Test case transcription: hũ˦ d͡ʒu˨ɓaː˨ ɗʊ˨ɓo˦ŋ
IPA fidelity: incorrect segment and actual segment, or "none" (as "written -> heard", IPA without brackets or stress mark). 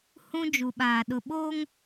none